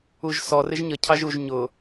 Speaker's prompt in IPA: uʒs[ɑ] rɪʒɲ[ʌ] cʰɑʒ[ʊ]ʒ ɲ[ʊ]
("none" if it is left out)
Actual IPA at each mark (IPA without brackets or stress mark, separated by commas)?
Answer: ɔ, ʌ, u, ʊ